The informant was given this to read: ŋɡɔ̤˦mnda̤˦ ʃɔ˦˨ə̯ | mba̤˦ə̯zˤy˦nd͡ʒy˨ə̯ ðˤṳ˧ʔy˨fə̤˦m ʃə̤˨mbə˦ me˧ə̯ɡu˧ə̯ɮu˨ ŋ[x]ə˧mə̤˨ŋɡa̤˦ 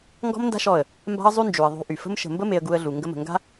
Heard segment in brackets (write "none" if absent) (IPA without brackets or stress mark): ɡ